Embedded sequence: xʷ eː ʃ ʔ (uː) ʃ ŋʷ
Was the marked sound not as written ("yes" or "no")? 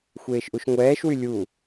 yes